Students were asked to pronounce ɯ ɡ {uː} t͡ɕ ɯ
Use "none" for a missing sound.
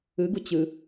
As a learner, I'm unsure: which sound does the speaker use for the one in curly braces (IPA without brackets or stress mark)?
u